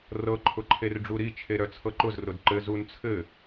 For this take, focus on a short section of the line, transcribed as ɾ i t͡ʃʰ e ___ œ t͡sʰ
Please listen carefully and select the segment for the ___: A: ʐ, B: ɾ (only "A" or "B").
B